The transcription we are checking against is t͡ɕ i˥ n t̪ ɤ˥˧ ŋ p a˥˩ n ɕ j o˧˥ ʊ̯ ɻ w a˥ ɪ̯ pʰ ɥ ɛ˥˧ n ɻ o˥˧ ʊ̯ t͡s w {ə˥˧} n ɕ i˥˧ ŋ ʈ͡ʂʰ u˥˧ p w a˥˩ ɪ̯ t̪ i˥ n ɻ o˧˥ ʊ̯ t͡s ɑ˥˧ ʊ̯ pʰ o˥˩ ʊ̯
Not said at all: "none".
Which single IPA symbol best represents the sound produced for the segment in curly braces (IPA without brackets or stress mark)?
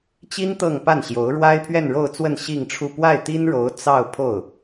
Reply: ə˥˧